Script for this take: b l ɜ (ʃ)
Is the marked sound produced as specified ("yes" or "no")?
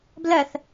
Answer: no